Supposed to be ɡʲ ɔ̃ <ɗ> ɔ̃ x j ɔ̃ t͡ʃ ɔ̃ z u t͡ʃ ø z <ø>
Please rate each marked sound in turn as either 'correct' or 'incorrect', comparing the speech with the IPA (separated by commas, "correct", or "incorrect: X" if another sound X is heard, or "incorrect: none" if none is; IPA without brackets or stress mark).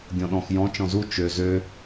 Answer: correct, correct